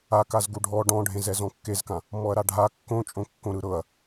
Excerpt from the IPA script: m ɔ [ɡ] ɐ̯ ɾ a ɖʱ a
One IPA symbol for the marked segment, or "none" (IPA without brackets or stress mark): none